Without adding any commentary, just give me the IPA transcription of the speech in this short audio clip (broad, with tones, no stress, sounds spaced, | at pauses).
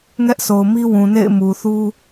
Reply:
ŋ ɛ˦ ʔ s o˨ ʊ̯ m i˦ w ũ˨ n ḛ˦˨ ɪ̯ m u˨ θ u˦